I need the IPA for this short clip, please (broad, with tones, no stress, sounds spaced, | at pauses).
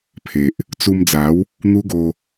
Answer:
pʰ e˨ ʔ | t͡s u˧ m d͡z a˨˦ w | n̪ u˦ ɡ o˧